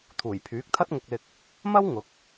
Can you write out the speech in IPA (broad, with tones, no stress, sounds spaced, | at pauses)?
t̪ʰ uː˨˩ j pʰ yː˨˥ k̚ t̪ʰ ɐ˥ t̚ ŋ ʊ˧ k̚ l ɪ˧ k̚ | m ɐ˥ w ŋ ʊ˨˥ k̚